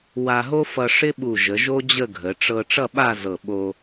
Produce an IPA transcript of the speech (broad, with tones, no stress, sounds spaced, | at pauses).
w a˧ ɦ o˥ f ʌ˧ ʂ ɪ˥ ɓ u˧˩ ʒ ə˩˧ ʒ o˥ d͡ʑ ə˥˧ ɡʱ ə˩˧ ʈ͡ʂ ɤ˧ ʈ͡ʂ ʌ˥˧ ɓ a˥˧ z ɤ˧˩ ɓ o˧